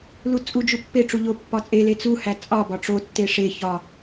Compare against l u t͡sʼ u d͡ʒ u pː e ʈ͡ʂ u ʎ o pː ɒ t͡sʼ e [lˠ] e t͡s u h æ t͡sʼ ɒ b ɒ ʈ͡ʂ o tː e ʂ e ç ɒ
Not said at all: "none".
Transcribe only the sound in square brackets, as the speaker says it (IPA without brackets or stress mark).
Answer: l